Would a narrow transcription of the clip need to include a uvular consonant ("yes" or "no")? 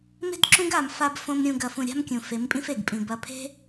no